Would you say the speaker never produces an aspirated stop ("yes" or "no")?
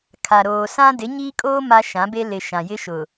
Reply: no